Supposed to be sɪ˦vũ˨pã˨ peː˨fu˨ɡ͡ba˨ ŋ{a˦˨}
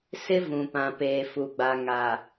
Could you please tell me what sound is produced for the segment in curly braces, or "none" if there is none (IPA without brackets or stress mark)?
a˨